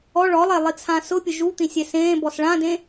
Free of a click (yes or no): yes